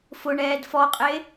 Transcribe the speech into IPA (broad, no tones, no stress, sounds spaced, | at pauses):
f ʊ ɳ ɛː d f ɔ qʼ e